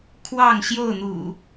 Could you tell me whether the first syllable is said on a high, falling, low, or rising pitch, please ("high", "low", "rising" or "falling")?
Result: falling